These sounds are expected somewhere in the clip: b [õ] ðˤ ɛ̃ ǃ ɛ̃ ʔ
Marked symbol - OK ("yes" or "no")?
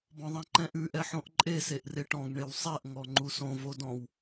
no